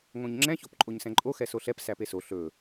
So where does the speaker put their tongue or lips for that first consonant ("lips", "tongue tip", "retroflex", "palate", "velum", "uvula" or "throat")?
velum